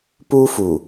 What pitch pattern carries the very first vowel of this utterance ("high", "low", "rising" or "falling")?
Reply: high